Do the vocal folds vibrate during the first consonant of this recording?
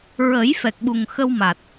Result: yes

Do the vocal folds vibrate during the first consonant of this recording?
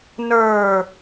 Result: yes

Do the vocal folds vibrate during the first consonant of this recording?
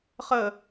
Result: no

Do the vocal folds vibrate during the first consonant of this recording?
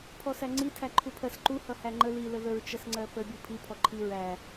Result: no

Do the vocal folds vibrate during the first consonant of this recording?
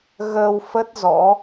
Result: yes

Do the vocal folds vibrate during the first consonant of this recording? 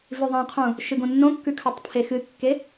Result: yes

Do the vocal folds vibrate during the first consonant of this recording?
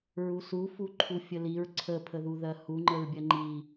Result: yes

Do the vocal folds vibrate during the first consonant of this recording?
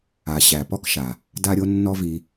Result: no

